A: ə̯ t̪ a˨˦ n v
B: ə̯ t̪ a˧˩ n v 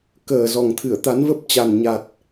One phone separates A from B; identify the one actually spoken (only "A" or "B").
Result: A